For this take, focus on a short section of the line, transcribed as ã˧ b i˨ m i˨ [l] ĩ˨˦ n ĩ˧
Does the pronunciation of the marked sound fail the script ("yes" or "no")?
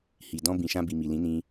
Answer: no